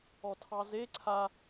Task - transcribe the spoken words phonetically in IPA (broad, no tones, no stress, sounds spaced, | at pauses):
ɔ tʰ ɑ z e ǀʰ a